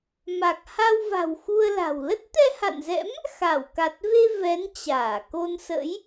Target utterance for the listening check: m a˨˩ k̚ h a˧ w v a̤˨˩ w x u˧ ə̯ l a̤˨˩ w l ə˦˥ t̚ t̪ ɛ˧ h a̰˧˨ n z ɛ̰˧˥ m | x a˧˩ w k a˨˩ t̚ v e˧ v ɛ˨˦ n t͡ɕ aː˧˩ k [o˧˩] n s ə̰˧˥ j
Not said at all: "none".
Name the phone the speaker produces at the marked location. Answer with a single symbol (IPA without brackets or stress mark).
o˧